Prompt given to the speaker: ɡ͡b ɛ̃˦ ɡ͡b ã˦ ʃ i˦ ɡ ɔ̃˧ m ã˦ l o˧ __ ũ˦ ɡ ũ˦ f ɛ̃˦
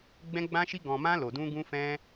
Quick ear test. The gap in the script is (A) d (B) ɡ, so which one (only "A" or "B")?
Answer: A